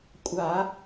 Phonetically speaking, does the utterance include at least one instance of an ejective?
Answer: yes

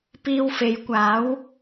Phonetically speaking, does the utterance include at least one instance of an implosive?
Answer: no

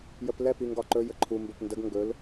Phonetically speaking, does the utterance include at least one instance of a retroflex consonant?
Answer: no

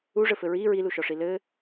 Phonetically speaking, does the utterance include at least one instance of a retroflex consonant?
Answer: yes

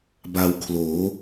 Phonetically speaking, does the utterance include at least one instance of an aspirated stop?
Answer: yes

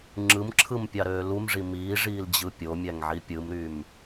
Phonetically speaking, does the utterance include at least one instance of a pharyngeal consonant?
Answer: yes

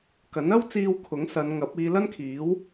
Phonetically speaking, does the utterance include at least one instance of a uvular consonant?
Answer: no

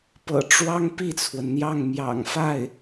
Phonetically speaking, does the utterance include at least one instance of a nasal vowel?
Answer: no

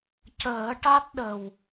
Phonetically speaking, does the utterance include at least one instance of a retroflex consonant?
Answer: yes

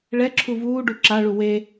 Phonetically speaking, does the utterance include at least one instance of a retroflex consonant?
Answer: yes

